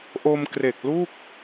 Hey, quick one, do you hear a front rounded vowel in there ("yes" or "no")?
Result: no